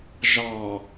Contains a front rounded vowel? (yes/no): no